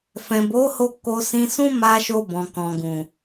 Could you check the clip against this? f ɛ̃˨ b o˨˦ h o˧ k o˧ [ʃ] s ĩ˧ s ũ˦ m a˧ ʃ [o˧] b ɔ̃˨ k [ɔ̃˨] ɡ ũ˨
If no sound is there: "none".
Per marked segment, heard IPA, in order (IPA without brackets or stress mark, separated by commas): none, o˧, ɔ̃˨